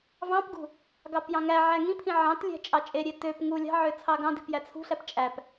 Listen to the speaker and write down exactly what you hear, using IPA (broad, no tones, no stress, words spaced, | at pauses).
vɑ̃pɡṳ | ɡɑpjɑ̃ŋæʕæ ŋĩ pʰĩʕɑ̃tlʲæ̤ t͡ʃʼɑt͡ʃʼeɾʲe tøp ŋu lʲɑ̤ʕø t͡sʰɑɡɑ̃di̤p jæt͡sʰṳɬæp t͡ʃʼæp